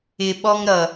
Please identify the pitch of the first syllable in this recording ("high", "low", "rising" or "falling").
low